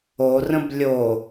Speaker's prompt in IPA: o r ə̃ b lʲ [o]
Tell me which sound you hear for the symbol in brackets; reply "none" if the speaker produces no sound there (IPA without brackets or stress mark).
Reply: o